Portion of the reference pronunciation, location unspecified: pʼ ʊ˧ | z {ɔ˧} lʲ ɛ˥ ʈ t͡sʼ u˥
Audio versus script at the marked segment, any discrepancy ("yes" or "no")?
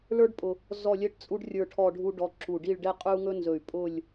yes